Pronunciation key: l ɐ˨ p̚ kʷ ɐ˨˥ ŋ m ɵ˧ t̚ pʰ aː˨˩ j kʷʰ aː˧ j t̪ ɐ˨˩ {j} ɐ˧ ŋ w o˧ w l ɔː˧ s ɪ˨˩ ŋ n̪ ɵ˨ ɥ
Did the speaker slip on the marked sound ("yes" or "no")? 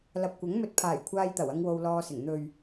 yes